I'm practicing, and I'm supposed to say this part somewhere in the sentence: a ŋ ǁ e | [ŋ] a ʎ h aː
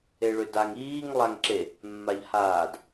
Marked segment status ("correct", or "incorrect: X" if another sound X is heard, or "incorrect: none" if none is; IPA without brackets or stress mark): incorrect: mː